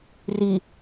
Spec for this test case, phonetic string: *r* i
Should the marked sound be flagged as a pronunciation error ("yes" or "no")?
no